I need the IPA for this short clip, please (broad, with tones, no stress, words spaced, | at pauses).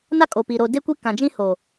na˦kʼo˨ pi˨ ɾo˨de˦kʷi˦ kã˨d͡ʒĩ˦ ho˨